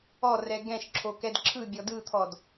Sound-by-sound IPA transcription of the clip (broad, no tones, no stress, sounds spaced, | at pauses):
ɔ r ɛ ɡ ɛ̃ ʃ ǁʰ o k ɛ d ǁʰ ɯ bʲ ɔ d ɯ t̪ʰ ɔ d